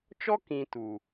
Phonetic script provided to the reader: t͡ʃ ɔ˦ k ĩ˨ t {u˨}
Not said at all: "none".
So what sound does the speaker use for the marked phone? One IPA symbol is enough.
u˨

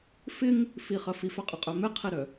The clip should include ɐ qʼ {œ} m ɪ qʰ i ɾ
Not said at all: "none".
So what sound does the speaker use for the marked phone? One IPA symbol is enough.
œ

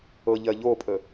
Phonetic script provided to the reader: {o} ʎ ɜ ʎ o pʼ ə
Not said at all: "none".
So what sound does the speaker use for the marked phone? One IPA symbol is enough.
ɤ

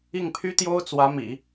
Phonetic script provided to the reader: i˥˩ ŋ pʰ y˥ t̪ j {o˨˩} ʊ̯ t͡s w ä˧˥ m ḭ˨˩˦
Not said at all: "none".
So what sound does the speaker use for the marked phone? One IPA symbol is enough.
o˥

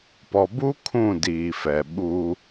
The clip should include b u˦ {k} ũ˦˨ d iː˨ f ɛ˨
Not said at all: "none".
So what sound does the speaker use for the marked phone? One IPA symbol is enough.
kʰ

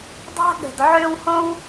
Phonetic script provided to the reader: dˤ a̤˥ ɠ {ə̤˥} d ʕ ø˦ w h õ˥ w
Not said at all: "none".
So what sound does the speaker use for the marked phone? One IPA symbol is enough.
ə̤˩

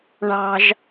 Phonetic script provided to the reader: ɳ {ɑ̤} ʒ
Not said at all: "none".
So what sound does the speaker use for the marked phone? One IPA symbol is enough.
ɑ̤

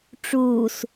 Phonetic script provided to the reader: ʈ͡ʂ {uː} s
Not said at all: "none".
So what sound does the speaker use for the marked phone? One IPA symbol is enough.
uː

